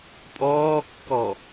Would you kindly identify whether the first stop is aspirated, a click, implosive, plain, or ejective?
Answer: ejective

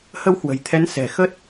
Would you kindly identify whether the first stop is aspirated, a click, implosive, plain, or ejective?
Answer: aspirated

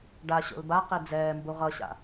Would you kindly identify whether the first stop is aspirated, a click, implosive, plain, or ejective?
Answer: plain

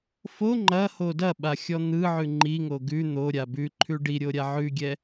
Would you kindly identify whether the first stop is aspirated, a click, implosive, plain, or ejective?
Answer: click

